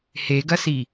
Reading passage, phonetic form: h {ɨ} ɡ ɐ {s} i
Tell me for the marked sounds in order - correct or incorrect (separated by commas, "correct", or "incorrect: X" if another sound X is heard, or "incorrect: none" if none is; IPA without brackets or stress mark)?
incorrect: e, correct